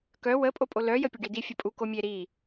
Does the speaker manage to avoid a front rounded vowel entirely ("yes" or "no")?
no